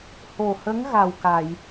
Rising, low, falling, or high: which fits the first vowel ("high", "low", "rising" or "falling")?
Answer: low